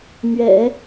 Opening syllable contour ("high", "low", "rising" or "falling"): low